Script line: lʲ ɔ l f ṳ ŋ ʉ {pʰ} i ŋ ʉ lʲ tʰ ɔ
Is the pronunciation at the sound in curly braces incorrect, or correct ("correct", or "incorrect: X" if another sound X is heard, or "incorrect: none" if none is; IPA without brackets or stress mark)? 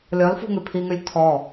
correct